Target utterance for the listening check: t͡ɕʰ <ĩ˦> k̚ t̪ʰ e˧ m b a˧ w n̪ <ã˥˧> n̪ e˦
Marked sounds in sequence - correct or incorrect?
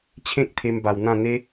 incorrect, correct

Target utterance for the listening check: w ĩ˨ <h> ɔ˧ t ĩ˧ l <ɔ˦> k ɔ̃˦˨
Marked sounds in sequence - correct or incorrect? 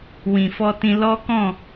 incorrect, correct

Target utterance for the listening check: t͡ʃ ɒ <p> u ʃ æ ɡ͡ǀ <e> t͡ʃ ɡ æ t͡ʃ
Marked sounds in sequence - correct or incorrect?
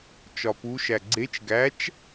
correct, correct

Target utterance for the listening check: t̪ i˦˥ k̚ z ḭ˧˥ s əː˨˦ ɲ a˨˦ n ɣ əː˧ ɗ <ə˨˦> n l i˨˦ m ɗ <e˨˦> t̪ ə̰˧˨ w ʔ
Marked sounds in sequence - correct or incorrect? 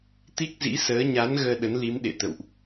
correct, incorrect

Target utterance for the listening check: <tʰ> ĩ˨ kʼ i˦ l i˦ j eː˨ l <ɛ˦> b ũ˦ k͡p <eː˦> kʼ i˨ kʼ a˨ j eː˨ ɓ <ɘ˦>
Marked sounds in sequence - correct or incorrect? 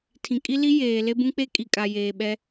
correct, incorrect, incorrect, incorrect

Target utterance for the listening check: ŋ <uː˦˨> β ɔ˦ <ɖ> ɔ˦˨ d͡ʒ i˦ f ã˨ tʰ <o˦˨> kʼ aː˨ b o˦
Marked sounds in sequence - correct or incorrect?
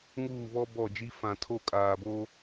correct, incorrect, correct

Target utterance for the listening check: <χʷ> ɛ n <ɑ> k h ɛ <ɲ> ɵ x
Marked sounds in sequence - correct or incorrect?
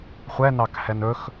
correct, correct, incorrect

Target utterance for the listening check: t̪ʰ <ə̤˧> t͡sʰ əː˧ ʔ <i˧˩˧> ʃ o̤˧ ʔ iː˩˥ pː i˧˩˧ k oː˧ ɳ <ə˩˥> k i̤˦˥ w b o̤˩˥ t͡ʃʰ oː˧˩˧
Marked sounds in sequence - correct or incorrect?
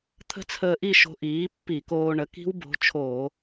incorrect, incorrect, correct

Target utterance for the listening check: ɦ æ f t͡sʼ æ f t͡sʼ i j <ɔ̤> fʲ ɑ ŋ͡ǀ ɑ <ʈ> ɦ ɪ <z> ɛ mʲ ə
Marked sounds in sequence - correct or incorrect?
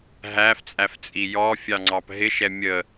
incorrect, incorrect, incorrect

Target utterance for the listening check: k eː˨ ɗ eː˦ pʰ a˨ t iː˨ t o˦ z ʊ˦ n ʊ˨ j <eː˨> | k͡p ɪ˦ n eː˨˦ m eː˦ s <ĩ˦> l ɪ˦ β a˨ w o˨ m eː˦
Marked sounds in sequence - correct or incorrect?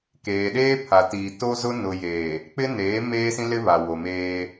correct, correct

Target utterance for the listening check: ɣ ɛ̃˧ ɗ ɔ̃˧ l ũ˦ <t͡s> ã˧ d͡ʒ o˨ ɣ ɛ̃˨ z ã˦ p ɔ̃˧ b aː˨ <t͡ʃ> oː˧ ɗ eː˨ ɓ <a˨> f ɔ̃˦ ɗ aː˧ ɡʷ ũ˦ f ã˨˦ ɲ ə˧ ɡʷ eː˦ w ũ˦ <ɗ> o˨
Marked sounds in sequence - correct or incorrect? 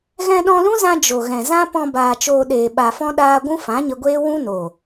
incorrect, correct, correct, incorrect

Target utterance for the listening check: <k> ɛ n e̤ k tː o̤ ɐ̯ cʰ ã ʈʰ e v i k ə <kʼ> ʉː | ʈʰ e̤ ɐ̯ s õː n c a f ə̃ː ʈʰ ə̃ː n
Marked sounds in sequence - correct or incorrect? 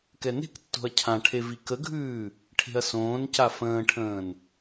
correct, incorrect

